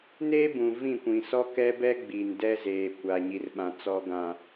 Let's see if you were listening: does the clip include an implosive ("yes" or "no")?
yes